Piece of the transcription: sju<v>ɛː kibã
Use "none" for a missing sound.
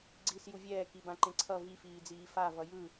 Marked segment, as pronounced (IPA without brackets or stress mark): vʲ